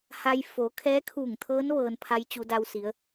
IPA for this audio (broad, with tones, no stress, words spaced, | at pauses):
ha˧j fo˩˧ kʰɛː˧˥kʰuː˧˩ŋt̪ʰɤː˧˥n ʋɤː˧npʰa˧˥j t͡ɕu˩˧da˧w si˩˧ə̯